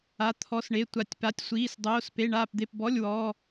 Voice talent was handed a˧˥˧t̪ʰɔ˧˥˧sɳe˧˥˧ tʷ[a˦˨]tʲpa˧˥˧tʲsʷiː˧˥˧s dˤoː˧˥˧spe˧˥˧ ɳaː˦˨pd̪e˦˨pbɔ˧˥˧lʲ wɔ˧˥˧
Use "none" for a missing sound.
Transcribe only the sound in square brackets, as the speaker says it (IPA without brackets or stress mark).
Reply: a˦˨